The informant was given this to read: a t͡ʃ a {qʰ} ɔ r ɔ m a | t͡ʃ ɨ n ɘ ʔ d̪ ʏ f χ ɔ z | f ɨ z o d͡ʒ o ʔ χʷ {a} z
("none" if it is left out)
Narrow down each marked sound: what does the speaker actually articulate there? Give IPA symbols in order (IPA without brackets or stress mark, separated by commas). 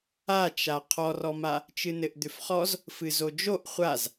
qʰ, a